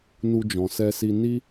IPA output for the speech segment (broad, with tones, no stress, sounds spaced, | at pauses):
n u˧ d͡ʒ ɔ̃˨ s ɛ˧ s i˧ n i˦